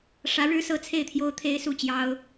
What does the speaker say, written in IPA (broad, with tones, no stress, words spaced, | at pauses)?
ʂä˧˥ɻɻ̩˥sɤ˥˧t͡sʰe˥˩ɪ̯ t̪ʰjo˥ʊ̯t̪ʰe˥ɪ̯su˥˩t͡ɕjɑ˥ʊ̯